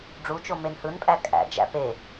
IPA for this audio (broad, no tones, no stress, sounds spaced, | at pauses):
ɖ͡ʐ u t͡ʃ o m e n h ɯ n pʼ æ kʼ æ̰ d͡ʒ æ̰ p e